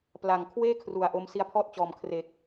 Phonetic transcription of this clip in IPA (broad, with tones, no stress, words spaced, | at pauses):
pla˨˩ŋ kʰweː˥˩ kʰru˨˩a̯ʔo˦˥m si˦˥a̯pʰɔː˥˩t̚t͡ɕɔː˨˩m kʰre˨˩k̚